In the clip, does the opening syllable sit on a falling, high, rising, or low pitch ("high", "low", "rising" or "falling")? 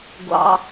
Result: high